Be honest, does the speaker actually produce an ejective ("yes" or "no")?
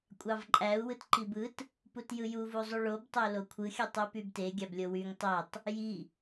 yes